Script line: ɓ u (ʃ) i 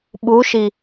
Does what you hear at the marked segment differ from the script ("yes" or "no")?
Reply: no